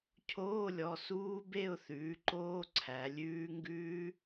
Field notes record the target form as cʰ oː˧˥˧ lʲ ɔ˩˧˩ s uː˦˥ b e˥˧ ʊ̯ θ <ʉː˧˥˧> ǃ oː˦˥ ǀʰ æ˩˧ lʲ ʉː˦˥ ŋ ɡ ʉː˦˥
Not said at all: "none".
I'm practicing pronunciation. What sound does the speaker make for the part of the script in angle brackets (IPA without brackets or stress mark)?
ʉː˩˥